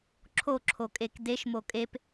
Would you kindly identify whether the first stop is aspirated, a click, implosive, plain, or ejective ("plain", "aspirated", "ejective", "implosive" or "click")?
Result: click